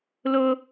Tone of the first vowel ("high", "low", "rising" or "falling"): high